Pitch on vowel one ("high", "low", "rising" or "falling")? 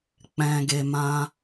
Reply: low